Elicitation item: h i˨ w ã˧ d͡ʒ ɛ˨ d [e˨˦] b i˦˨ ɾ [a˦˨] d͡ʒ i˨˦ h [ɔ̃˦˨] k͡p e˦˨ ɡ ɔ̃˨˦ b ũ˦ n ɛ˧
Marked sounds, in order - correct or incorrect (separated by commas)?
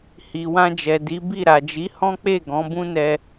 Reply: incorrect, incorrect, incorrect